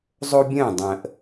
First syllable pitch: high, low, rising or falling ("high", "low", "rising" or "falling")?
high